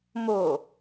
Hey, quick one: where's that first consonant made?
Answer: lips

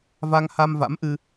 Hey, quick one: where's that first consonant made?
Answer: lips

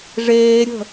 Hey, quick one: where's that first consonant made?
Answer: retroflex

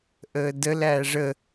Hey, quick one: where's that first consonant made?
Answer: throat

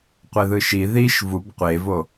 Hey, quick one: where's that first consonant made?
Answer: uvula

